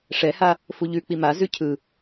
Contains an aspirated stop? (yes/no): yes